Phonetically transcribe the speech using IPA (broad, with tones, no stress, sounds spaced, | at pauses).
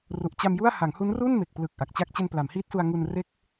r u˨˩ ʔ t͡ɕ a˧ m j u˥˩ a̯ h a˩˦ ŋ h u˦˥ n r u˥˩ n m e˨˩ k̚ p l ɯ˨˩ k̚ ʔ a˨˩ k̚ t͡ɕ a˥˩ k̚ t͡ɕ e˧ n p l a˩˦ m h iː˦˥ t̚ s u˧ a̯ ŋ u˧ n r e˥˩ k̚